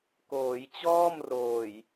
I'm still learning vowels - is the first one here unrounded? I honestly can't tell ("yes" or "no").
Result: no